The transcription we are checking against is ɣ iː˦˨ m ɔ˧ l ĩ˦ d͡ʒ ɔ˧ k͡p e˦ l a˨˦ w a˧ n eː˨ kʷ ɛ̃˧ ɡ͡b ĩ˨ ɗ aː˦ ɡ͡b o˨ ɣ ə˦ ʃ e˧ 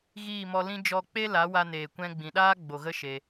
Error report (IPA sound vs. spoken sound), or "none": none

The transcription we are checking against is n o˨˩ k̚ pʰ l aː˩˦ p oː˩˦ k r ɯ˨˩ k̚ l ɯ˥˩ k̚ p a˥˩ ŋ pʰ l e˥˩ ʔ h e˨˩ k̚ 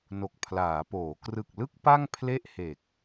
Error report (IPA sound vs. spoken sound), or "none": none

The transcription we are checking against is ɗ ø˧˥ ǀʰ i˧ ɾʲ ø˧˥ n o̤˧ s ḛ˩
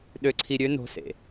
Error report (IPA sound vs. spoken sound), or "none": none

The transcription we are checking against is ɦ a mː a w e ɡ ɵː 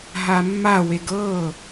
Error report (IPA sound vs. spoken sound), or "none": ɵː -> ɤː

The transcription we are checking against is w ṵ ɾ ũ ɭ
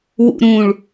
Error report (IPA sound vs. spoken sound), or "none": none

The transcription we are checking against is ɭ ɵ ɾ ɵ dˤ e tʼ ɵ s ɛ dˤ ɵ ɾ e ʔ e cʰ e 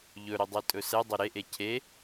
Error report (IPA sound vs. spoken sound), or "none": ɭ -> ʎ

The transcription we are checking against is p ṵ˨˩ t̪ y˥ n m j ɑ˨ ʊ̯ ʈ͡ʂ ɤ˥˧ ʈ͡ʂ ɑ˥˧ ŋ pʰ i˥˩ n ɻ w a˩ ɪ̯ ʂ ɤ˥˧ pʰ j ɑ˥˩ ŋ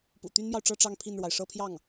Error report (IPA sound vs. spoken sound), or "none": none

